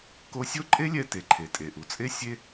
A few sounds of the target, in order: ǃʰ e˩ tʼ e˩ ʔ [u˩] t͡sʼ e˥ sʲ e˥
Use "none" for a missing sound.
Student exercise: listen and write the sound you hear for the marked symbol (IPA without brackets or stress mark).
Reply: u˩